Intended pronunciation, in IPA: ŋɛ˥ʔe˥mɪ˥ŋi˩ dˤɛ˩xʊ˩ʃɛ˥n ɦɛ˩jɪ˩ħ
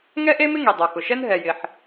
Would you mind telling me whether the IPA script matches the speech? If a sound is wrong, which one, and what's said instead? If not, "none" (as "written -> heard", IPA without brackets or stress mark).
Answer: none